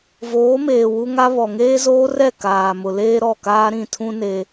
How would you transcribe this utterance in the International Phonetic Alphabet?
v oː˨˦ m eː˨ w u˦ ŋ a˦ β ɔ˨ ŋ eː˦ z oː˦ r ɛ˦˨ k aː˨ m ʊ˨ l eː˦ ɾ ɔ˦˨ k aː˦ ɾ ĩ˦˨ tʰ ũ˦ n e˦

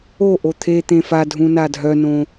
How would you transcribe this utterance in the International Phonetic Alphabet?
o ʔ o t̪ʰ e t̪ ẽ f a dʱ ũ n a dʱ œ n õ

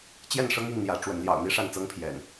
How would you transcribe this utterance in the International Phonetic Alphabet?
t͡ɕ j ɛ˥˨ n ʂ ɤ˦ ŋ i˥˨ ŋ n̪ j ä˨˦ ʈ͡ʂ w ə˨˦ n l j ɑ̰˨˩ ʊ̯ n̪ i˦ ʂ a˥˨ n t͡s ɤ˦ ŋ pʰ j ɛ̰˨˩ n

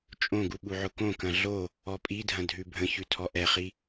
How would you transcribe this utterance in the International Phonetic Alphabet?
t͡ʃʼ õ ɡ u ɓ u ʕ ʊ k õ k ɐ̃ ɮ o | ɔ pʼ i dʱ ɐ̃ dʱ ʉ bʱ ə̃ ç ʉ tʰ ɔ ʔ ɛ χ i

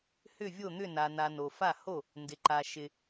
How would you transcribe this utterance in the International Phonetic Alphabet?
h ʏ˥˩ vʲ o˥˩ n̪ ʏ˥˩ n a˨ n a˨ n o˨ f a˥˩ h o˥˩ | n d ɪ˨ ǃ a˨ ʃ ɪ˨

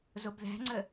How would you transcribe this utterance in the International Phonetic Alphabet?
z o b ð æ̤ ŋ͡ǀ ə

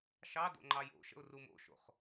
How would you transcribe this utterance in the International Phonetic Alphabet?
ʃ ɑ d o̰ ŋ͡ǃ ɑ j o̰ ʃ ə̰ ʊ̯ r u m o̰ ʃ o̰ χ

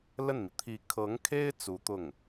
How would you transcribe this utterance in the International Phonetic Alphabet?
l ə˥˩ n m i˩ t̪ʰ i˧˥ kʰ ɤ˧˥ ŋ kʰ e˥ ɪ̯ t͡s u˧˥ t̪ ʊ˥˩ ŋ

